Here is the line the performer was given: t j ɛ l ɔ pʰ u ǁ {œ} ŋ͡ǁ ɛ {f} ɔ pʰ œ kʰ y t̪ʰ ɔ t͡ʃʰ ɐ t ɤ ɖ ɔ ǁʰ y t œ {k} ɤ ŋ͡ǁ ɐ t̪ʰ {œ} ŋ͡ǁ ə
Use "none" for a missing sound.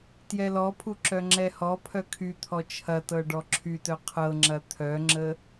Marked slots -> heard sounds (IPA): œ, h, qʰ, œ

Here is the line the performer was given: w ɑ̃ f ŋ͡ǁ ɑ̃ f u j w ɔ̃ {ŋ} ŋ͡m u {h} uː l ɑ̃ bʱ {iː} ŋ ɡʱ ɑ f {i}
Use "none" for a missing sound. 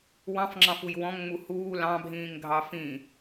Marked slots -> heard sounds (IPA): ŋ, h, ĩː, ĩ

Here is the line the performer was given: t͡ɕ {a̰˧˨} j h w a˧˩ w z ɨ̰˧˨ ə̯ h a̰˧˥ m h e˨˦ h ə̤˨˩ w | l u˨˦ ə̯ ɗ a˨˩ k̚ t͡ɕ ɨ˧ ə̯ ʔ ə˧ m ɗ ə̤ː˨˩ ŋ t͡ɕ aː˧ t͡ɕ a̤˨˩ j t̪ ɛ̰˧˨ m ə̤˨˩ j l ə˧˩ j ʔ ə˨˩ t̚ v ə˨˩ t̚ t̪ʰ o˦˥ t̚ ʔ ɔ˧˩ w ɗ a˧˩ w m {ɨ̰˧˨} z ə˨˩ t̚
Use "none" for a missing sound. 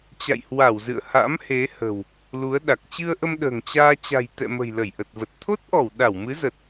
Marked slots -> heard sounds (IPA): a̰˧˨, ɨ˨˦

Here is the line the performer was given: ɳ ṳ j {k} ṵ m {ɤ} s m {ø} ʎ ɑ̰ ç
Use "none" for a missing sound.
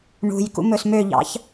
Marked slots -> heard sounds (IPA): k, ɵ, ø

